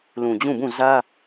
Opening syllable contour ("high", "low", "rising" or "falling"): low